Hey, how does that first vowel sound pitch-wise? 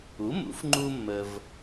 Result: rising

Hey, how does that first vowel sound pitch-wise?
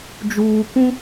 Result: low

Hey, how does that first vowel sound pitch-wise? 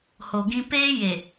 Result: low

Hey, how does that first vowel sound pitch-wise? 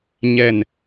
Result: low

